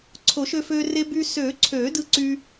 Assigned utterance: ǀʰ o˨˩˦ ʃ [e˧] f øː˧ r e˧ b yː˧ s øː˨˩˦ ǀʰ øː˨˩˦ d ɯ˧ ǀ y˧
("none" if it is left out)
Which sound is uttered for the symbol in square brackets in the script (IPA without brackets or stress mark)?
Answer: ø˧